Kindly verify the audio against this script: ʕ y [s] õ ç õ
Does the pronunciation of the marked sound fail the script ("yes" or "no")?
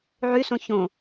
no